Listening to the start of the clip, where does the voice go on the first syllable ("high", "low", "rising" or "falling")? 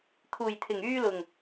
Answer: low